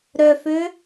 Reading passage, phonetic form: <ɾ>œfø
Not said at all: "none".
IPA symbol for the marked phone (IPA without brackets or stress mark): ɾ